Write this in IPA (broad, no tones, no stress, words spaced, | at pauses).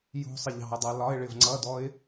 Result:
jṳsˤɪ ʎɑ̤ə̯dˤɜ lɒɪ̯ɭɪv ŋ͡ǀʌdɔɪ̯